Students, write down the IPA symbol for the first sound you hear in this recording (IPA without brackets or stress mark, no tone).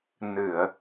n